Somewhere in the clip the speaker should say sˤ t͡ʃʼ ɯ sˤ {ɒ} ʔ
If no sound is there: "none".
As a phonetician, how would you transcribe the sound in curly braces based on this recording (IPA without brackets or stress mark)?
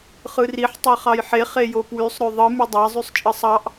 ɑ